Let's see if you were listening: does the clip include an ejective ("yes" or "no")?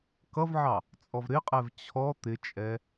yes